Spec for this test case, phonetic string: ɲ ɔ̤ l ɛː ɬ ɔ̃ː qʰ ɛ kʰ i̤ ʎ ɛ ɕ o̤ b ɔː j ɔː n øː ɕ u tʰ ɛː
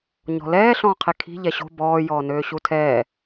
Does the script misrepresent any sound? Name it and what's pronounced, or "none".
none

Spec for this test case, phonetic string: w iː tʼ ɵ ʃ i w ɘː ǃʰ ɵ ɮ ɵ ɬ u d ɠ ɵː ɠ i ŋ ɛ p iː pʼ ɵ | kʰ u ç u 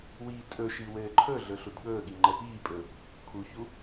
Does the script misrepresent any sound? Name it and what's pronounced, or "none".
ŋ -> ŋ͡ǃ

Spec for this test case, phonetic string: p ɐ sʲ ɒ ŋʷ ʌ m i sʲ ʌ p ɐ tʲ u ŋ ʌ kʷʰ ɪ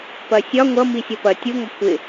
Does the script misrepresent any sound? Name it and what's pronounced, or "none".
none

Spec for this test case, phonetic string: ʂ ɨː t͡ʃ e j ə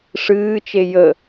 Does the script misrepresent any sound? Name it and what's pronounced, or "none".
none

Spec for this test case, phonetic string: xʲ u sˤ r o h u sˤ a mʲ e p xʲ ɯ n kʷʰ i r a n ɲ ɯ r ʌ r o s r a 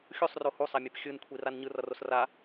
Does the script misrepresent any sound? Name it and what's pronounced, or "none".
none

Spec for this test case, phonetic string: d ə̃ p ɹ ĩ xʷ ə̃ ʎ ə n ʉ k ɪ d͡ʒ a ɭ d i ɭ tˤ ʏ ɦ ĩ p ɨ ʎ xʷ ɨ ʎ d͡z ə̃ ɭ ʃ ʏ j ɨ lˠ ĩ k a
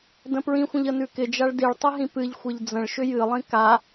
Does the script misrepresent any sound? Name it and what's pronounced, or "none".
none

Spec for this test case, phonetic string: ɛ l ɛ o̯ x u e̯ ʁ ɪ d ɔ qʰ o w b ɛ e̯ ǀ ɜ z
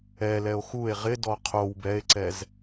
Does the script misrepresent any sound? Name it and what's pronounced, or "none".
ɜ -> ɛ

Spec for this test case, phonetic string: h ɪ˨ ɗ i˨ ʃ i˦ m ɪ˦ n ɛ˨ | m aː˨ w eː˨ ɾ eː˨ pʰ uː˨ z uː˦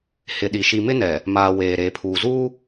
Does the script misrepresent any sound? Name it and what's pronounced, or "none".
none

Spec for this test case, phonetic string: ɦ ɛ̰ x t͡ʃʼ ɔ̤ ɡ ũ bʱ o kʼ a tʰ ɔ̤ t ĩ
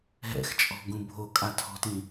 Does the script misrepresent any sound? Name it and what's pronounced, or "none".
none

